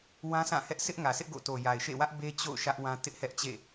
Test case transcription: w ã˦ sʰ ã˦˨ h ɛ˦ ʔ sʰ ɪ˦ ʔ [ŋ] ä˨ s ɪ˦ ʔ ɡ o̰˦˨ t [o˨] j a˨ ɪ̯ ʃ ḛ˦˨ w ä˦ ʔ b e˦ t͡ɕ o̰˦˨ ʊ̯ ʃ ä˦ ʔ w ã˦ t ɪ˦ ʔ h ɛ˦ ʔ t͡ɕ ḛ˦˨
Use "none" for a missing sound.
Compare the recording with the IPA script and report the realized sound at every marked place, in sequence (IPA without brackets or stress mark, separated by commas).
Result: ŋ, o˨